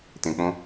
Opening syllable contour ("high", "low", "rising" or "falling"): low